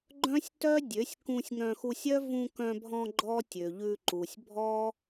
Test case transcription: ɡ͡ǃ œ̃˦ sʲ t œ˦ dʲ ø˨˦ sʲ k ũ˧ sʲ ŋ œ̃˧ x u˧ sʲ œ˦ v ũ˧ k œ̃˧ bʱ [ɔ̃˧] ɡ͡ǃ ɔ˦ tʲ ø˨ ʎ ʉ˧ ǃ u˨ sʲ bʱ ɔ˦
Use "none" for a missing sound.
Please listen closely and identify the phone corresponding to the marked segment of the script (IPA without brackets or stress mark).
ɔ̃˧